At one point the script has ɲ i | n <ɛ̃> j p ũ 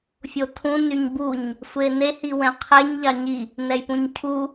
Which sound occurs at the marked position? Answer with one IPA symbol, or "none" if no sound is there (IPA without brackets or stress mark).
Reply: ɛ